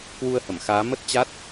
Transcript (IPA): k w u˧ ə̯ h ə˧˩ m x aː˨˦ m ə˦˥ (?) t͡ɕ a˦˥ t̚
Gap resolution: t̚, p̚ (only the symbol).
t̚